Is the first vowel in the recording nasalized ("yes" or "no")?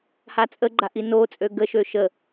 no